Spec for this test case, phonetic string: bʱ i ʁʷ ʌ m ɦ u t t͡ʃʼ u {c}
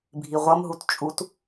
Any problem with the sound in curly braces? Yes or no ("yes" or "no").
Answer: yes